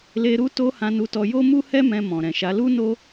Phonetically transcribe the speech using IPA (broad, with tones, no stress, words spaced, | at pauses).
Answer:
le˧ɾu˦ to˦hã˧nu˧tɔ˧ jo˦mu˦hɛ˦ mɛ̃˧mɔ̃˨ɾɛ̃˨ʃa˨˦ lu˦no˦